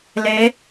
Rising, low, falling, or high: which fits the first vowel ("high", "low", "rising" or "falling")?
rising